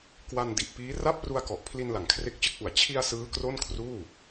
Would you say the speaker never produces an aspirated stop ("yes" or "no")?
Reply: no